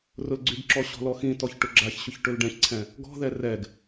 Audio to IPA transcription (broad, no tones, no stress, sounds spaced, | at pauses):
r ʊ l ɡ͡ǀ y ɡ ǁ ɔ ɕ ɔ̤ l ɔ x ĩ t ɔ ç ʈ ʊ ɡ͡ǁ a ç ɕ ʊ ç ʈ ɵ l ɖ ɛ̃ ç ǀʰ ɛ̃ | ɡ ɔ̤ ð ɛ r ɛ ɡ